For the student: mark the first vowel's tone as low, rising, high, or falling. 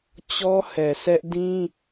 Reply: high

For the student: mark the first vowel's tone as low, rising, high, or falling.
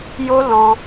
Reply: high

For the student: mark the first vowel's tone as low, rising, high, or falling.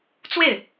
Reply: falling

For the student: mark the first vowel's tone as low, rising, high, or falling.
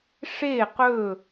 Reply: falling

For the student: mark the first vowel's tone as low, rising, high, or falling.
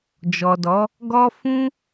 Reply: low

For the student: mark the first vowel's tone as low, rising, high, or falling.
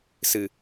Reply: low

